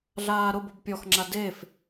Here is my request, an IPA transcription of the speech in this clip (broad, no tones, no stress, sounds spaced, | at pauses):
ɮ aː ɾ ʊ b o b pʲ ɔ x ŋ͡ǁ a d e f